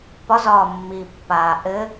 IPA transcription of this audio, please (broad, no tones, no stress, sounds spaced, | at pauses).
p ɒ z ɒː mː iː pː aː ʔ ɘ